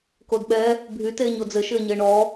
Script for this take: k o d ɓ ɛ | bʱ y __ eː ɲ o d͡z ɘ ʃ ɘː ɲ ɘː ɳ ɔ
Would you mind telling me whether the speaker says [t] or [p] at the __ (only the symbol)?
t